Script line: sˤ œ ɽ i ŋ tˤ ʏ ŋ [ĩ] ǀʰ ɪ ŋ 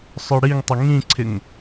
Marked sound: correct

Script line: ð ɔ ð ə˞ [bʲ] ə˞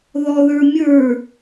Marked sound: incorrect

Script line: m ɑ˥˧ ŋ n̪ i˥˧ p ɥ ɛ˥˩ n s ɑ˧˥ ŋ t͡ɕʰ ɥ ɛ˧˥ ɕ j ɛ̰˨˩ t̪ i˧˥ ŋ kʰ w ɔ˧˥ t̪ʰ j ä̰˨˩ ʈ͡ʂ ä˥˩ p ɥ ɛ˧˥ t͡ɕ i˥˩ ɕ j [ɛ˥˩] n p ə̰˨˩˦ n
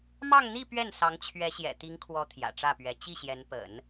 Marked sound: incorrect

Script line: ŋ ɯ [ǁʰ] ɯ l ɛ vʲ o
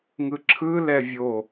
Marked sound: correct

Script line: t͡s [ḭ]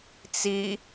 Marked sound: incorrect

